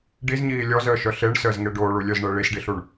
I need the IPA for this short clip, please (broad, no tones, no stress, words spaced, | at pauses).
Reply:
ɖizɲiː lʲɔzəːʃœ ɬeɳsəːzŋe ɖoːɭulʲœzɳəː ɭisɖiɬuɳ